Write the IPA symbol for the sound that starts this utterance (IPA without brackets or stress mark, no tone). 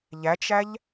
ʎ